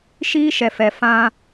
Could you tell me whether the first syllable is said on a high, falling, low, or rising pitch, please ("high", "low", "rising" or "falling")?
high